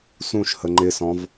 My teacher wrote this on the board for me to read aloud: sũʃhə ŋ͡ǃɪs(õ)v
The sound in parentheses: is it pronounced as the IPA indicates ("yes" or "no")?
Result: no